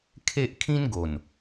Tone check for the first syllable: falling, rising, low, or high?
high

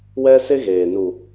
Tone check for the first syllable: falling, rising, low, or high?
high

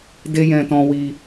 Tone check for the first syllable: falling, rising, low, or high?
high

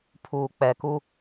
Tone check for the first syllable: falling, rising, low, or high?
low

